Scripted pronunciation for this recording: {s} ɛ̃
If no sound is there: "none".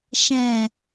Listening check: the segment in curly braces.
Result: ʃ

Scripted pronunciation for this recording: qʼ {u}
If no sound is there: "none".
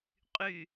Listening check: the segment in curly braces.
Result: y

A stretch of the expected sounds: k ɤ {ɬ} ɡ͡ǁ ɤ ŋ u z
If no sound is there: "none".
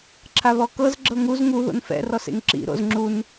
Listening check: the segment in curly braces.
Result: z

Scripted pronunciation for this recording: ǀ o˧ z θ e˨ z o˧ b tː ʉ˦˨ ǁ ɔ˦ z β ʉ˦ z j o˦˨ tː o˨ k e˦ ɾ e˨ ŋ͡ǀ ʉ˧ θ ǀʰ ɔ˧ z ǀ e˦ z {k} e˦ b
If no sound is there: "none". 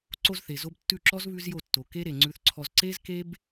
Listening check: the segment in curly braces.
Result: k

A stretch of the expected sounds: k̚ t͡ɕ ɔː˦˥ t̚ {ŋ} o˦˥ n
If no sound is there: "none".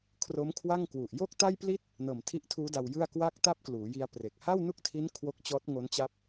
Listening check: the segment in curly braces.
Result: ŋ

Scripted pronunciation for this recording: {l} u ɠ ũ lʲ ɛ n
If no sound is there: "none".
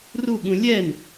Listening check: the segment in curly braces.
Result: r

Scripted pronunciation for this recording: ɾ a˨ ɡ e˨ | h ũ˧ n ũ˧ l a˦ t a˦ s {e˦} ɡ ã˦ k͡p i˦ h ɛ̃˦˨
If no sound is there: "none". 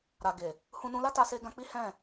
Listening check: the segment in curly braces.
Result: e˦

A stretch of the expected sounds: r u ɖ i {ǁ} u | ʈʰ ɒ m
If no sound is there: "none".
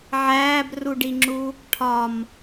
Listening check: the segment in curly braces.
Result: ŋ͡ǁ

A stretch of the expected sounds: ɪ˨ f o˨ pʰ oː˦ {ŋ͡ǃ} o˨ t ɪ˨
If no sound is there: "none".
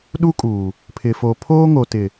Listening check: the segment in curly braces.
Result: ŋ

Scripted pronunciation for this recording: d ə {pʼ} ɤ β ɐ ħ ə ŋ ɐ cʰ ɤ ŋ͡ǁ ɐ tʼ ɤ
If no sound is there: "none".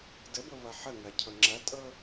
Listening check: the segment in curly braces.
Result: b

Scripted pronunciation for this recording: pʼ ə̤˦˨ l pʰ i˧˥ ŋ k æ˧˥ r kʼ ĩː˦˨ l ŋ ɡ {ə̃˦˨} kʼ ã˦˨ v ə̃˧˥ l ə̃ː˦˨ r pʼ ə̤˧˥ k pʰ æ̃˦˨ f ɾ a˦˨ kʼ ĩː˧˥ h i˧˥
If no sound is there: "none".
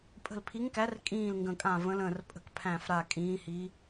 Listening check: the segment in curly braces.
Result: ə̃˦˨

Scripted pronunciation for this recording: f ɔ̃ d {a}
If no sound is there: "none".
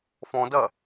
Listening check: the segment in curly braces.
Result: ɐ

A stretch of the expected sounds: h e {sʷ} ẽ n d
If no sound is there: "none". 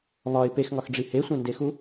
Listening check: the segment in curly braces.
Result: sʷ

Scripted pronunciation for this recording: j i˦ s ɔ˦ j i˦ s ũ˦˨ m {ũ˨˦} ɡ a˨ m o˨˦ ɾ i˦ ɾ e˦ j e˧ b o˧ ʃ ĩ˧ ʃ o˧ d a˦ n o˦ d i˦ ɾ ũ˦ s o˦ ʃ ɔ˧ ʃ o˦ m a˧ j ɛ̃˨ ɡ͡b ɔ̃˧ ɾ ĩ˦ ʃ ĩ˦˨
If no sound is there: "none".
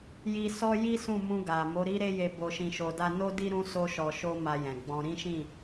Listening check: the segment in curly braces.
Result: ũ˧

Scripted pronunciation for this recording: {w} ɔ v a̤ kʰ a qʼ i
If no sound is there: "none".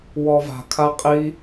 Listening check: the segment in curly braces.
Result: w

